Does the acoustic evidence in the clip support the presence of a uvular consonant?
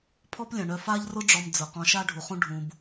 yes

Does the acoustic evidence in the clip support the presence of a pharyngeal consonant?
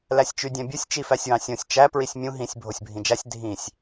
no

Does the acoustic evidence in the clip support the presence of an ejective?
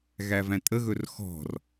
yes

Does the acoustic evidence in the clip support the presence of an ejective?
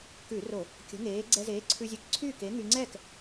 no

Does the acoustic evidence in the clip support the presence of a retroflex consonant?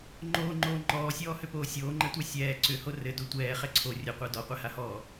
no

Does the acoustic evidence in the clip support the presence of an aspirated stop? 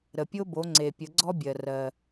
no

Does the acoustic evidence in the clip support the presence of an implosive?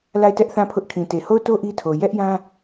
no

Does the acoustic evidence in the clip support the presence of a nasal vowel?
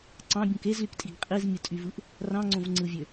yes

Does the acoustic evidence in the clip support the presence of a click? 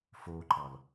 yes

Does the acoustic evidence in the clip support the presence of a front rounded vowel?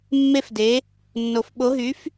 yes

